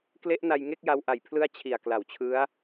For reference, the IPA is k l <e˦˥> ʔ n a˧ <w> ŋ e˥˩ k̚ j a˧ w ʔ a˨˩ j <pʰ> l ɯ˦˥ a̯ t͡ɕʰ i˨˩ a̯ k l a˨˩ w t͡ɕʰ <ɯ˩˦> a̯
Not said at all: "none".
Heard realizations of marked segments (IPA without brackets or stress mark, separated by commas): e˦˥, j, pʰ, ɯ˦˥